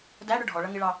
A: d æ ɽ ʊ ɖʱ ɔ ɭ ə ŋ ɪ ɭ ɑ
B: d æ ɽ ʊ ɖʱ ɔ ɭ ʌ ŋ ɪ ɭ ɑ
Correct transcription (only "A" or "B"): B